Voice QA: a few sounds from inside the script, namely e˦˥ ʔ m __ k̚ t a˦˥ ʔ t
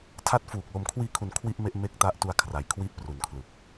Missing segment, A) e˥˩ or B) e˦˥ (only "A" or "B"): B